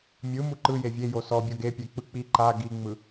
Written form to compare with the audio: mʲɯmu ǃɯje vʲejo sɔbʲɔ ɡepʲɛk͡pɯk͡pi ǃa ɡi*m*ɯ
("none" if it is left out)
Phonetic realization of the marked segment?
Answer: ŋ͡m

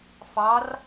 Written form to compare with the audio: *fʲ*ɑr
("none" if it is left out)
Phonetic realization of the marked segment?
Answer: f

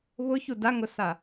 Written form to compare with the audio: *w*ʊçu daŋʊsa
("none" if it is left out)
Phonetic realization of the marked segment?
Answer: β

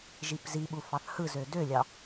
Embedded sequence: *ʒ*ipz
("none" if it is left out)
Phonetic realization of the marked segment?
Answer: ʒ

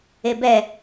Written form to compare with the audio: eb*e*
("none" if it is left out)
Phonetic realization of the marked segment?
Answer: ɛ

